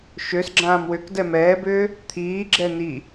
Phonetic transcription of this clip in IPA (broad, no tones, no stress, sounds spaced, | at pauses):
ʃ ø s ɡ͡ǁ ãː m w ʏ k d ɛ m ɛː b ʏː | t̪ʰ iː ɡ͡ǁ ɛ n i